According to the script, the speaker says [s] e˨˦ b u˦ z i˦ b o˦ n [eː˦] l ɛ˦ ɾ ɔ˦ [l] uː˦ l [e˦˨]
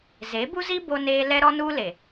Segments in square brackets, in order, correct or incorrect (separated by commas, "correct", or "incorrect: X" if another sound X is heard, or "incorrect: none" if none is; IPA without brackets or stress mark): incorrect: z, correct, incorrect: n, incorrect: e˨